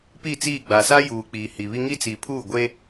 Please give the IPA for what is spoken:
p i˦˨ t͡s iː˦˨ ɡ͡b a˨ s a˦ j uː˨ k͡p iː˨ h i˨ β i˦ ŋ i˦ t͡s i˨ pʰ uː˦˨ ɡʷ e˦

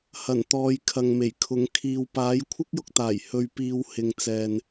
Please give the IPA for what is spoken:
h ɐ˨˩ n t̪ ɔː˨ j kʰ ɐ˨ ŋ m e˨˩ j kʰ ʊ˨˧ ŋ kʰ iː˨ w p aː˨˥ j kʷʰ ɪ˥ k̚ j ʊ˧ k̚ t̪ aː˨˩ j h ɵ˧ ɥ p iː˧ w h ɪ˨ ŋ t͡s ɛː˨ n

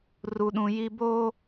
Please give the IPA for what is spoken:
r u˨ ɗ ũ˨ j i˦ b oː˦

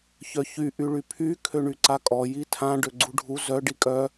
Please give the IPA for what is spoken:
ç œ ç y ʔ y ɭ y pʰ y kʰ ø ɳ y ǀ a kʼ ɔ j i tʰ ã ɖ ø ɡ͡ǀ u ɖʱ u z œ ɖ i kʼ œ

